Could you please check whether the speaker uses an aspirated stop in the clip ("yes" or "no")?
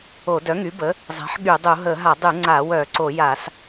no